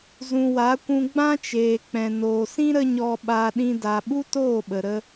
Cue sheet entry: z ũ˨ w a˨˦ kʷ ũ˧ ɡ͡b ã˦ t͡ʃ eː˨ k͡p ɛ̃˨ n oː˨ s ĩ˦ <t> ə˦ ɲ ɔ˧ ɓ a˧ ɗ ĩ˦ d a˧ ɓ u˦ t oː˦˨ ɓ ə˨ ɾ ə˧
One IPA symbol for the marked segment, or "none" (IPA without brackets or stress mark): ɾ